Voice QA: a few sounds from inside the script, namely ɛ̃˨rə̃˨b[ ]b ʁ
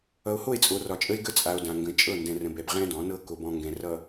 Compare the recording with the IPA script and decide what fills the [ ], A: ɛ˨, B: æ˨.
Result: A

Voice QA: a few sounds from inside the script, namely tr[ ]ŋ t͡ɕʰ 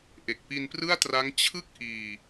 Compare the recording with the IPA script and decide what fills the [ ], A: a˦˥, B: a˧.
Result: A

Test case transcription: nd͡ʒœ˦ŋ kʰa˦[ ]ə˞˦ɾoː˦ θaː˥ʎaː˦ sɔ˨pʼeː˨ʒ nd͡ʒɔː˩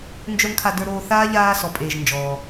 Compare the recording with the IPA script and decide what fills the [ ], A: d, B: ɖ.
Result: A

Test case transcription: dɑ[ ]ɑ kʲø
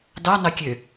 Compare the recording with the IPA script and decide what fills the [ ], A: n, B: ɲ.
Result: A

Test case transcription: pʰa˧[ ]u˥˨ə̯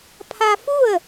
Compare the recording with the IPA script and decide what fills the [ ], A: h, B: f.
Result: B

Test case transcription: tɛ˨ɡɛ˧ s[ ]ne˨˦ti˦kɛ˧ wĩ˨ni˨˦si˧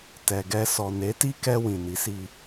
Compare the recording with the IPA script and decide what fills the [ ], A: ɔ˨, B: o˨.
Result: A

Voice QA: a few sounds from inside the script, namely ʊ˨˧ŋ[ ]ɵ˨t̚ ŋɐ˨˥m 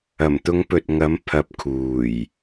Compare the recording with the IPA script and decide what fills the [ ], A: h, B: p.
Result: B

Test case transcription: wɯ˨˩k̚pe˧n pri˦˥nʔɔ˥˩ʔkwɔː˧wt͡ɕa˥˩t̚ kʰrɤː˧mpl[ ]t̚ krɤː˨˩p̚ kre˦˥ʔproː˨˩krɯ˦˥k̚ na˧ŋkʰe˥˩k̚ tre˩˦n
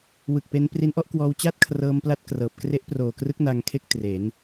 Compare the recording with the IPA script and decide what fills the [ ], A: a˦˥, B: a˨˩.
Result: A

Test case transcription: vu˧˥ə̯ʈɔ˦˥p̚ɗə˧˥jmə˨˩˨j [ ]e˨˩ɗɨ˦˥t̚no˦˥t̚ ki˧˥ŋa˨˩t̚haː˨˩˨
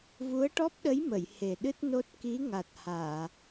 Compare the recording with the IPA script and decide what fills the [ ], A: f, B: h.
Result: B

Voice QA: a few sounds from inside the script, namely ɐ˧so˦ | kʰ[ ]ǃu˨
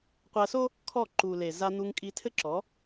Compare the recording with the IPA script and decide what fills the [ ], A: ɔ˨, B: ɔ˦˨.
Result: B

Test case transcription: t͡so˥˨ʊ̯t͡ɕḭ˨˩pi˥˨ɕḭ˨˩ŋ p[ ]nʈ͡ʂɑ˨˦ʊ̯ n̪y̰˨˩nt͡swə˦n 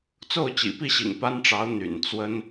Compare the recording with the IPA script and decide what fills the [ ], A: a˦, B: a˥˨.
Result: A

